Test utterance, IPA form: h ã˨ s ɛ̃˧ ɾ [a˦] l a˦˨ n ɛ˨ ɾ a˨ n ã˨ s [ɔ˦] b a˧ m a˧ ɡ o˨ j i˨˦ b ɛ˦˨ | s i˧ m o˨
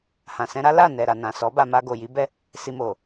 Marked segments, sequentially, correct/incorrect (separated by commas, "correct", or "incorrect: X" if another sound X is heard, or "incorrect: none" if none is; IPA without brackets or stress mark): correct, incorrect: ɔ˨˦